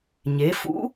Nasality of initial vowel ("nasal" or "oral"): oral